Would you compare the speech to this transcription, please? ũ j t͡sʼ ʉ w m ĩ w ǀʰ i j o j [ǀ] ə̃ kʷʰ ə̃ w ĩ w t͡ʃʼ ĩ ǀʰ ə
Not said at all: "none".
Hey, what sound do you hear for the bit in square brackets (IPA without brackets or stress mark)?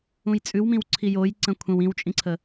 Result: ǀ